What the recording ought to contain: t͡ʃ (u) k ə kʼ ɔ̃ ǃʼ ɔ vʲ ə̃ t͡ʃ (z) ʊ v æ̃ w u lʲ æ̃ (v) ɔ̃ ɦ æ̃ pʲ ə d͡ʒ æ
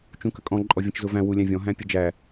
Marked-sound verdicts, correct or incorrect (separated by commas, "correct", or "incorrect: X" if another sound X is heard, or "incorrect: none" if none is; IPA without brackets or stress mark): incorrect: ũ, correct, incorrect: vʲ